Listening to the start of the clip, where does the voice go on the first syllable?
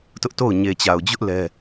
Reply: high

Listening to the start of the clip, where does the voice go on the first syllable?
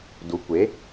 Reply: rising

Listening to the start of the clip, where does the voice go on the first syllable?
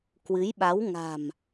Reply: rising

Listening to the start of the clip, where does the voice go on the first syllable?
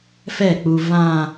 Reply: falling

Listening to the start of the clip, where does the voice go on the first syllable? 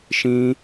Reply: high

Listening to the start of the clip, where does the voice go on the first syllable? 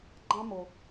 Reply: high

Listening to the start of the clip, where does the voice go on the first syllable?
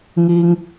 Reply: high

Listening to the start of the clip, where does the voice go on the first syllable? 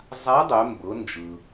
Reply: rising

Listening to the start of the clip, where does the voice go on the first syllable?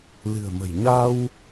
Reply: low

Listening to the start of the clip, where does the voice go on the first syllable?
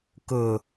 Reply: low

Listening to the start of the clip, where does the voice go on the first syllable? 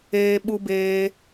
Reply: high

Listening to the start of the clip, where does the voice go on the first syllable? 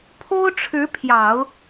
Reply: high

